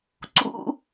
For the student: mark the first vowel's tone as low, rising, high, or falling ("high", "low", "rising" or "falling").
high